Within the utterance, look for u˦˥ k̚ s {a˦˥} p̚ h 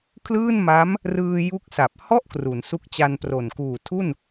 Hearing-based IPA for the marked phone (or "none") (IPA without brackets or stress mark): a˨˩